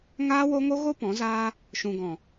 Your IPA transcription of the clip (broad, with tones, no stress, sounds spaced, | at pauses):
ŋ aː˦ w o˦ ŋ o˦ ɣ o˦ p ɔ̃˨˦ z aː˦ | ʃ ũ˨ ɡ ɔ̃˨